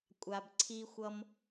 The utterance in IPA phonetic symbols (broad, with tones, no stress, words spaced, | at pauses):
kʷʼa˨bǀʰi˧xʷʌ˧m